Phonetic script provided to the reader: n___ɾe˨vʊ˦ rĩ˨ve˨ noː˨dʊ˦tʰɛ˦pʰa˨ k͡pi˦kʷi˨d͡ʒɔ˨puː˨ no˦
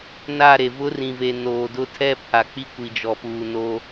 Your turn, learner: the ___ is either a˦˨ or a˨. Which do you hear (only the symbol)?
a˦˨